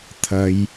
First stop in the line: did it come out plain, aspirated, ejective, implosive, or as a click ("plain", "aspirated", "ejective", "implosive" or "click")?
aspirated